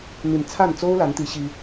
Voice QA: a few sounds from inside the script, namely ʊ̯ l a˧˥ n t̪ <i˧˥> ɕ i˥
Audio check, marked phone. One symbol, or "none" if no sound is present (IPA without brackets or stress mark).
i˧˥